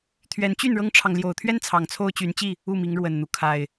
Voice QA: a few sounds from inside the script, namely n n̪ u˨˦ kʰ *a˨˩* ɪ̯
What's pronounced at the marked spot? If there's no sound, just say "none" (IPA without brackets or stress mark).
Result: a˨˩